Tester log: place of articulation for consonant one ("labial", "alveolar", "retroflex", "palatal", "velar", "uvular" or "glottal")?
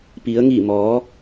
labial